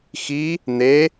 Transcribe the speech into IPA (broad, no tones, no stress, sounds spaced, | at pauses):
x i | n̪ e